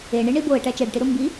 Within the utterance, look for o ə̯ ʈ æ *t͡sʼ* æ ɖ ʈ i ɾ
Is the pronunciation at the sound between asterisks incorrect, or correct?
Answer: incorrect: t͡ʃ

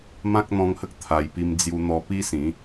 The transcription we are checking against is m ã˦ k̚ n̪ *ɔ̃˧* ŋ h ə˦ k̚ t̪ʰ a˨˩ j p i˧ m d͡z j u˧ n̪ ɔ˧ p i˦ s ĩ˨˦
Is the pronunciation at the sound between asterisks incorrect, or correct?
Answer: correct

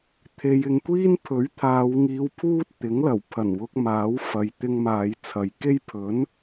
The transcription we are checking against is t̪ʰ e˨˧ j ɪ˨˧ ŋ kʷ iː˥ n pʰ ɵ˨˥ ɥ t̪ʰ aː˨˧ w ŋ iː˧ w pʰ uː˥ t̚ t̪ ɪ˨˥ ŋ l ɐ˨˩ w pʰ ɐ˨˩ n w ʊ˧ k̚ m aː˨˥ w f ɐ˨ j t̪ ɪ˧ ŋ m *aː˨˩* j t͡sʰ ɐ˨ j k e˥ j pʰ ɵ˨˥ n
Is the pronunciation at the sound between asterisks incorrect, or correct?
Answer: incorrect: aː˨˧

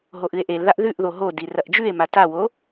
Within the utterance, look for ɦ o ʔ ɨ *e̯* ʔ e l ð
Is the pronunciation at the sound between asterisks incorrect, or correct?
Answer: correct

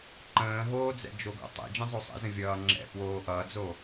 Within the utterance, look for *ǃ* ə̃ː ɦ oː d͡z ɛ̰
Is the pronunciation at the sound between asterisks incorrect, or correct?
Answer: correct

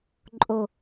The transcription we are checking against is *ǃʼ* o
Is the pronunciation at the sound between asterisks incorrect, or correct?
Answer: correct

